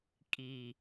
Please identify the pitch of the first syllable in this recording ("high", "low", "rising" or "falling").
low